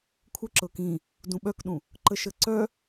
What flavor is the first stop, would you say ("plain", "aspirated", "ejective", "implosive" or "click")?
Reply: aspirated